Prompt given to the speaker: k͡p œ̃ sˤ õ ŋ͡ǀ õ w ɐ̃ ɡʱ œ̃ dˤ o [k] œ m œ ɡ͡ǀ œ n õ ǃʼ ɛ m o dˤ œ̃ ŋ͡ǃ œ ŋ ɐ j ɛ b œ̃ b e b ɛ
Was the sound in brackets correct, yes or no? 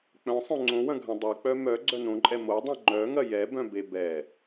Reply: no